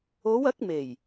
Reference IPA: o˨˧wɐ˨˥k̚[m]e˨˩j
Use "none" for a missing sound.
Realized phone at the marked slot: m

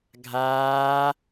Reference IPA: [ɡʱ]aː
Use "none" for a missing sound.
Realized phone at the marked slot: ɡʱ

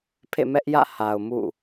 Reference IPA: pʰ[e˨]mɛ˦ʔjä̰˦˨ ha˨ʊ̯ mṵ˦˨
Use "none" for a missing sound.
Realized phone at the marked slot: ḛ˦˨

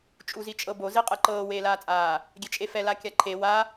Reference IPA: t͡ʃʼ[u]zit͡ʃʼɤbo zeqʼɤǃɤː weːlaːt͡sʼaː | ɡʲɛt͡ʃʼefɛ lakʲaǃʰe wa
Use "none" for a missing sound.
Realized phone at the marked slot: u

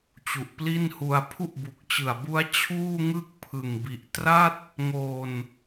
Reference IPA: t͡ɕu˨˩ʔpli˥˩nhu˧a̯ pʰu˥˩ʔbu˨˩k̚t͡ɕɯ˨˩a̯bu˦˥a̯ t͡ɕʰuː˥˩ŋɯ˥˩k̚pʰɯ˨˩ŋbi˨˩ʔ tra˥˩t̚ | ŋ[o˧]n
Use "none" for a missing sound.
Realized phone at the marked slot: o˧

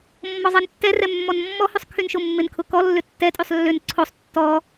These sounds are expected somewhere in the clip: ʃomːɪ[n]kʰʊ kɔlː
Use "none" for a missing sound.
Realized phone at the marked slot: n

